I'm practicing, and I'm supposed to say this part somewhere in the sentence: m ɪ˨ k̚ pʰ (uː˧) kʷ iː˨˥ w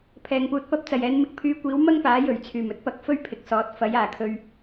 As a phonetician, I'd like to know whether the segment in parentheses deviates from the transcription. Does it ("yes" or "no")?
yes